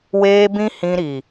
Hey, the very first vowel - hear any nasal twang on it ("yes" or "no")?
no